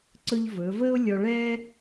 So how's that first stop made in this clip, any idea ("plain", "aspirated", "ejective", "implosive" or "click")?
click